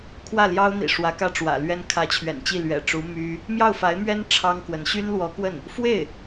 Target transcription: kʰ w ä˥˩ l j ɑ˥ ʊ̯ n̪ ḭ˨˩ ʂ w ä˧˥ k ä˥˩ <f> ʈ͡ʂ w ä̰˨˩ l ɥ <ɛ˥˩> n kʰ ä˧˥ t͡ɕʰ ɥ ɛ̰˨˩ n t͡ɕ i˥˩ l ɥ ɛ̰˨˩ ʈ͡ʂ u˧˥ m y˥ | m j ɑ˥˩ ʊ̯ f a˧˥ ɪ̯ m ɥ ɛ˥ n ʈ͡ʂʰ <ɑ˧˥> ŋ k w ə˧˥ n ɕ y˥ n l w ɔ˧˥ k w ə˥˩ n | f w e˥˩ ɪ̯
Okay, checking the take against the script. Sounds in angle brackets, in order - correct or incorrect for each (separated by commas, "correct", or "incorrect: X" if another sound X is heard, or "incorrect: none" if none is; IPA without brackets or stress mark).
incorrect: none, incorrect: ɛ˥, incorrect: ɑ˥